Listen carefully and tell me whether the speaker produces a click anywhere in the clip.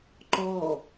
yes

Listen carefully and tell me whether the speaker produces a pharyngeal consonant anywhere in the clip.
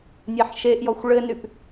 yes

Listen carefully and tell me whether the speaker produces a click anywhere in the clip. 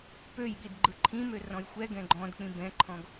yes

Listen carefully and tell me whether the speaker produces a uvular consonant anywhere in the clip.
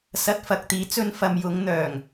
no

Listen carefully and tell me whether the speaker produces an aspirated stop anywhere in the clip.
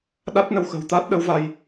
no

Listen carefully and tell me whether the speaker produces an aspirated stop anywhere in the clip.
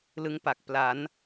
no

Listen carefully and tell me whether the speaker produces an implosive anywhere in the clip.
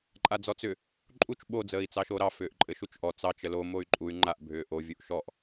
yes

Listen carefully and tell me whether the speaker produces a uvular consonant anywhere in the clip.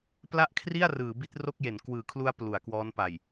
no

